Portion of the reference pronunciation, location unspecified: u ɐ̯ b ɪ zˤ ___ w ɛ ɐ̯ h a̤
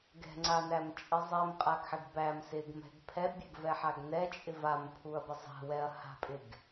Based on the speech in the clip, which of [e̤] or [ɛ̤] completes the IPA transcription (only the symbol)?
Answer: ɛ̤